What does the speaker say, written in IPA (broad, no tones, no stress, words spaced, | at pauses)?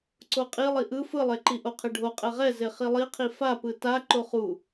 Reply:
ǀoqʼi lˠiʔɯ fɯlˠeǃi ʔoqʰeɖʱo qʼɛʁɛ zeχilˠiqʰi fa pɯta ǃoχu